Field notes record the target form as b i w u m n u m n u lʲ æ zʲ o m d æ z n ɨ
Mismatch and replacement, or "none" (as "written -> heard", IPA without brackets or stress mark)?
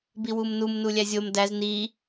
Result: ɨ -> i